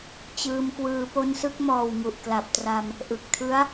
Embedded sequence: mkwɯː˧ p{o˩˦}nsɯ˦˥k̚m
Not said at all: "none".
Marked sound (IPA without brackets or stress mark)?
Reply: o˧